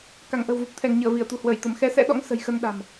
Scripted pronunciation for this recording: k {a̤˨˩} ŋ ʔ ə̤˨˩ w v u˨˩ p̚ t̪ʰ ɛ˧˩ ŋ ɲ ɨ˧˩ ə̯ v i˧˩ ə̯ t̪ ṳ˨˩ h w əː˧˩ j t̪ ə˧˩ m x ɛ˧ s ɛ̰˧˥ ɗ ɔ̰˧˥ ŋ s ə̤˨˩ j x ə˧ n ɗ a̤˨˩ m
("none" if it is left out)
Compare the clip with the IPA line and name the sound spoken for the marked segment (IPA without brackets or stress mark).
a˧˩